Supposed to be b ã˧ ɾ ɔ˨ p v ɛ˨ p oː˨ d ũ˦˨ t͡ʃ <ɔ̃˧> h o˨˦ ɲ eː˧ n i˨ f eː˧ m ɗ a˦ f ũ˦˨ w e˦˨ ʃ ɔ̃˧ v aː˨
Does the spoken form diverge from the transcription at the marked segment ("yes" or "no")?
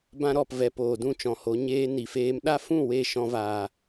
yes